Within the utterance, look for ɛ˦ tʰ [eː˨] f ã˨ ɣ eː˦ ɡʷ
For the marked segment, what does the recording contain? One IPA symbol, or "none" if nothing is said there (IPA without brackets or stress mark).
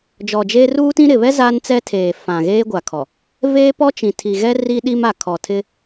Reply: eː˨